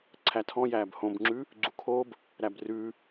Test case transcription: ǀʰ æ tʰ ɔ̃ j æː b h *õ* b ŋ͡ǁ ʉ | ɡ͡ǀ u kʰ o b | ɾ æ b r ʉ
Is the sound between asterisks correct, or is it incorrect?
correct